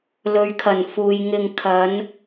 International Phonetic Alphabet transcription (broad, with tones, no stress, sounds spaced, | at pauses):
l ɵ˨˧ ɥ kʰ ɐ˨˩ n f uː˨ j ŋ ɪ˨ ŋ kʰ ɐ˨˧ n